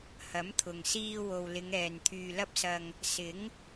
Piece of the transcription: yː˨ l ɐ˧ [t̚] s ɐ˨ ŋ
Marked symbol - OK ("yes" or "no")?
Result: no